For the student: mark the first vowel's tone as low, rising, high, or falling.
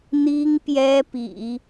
high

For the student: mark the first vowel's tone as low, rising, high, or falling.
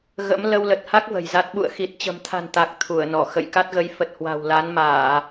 rising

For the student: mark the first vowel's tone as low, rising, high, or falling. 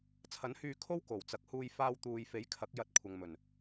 rising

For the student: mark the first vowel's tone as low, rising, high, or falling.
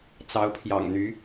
rising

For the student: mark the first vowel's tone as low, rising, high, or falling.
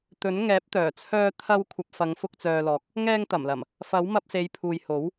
rising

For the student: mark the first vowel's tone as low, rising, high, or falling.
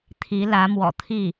rising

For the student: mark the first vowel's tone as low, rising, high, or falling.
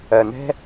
low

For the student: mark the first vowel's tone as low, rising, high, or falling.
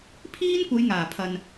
high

